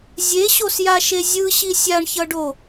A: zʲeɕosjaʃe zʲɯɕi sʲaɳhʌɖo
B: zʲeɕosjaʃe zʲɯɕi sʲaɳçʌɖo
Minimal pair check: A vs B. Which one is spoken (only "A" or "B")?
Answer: B